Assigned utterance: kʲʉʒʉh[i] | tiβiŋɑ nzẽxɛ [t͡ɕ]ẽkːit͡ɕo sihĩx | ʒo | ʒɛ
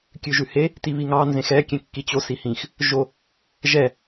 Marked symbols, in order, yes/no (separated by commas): no, no